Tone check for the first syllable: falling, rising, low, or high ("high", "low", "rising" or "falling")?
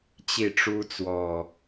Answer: falling